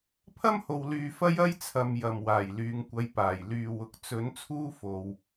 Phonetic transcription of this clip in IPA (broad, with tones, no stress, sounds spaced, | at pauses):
pʰ ɐ˥ m h o˨ w l yː˨ f ɐ˥ j ɐ˥ j t͡sʰ ɐ˨ m j ɐ˨˩ m w aː˨˩ j l yː˨˧ ŋ kʷ ɐ˨˧ j p aː˨˩ j l yː˨ w ʊ˨ k̚ t͡s ɵ˨˧ n t͡sʰ uː˥ f o˨ w